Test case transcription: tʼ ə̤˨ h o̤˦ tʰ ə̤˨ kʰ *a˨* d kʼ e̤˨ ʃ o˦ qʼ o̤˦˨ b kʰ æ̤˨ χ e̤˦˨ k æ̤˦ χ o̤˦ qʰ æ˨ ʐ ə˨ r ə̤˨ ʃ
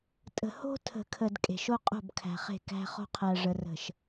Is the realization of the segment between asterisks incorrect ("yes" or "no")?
yes